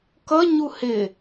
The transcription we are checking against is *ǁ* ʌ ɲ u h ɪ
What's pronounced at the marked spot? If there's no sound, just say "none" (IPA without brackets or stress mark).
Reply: k